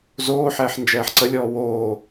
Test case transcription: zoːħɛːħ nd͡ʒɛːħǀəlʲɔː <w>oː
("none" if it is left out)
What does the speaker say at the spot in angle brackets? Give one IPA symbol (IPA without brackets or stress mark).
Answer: w